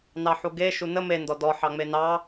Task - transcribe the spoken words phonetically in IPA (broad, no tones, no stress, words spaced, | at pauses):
nɑħuɡe ʃunə me ndɔdɔ ħɑŋ͡menɑ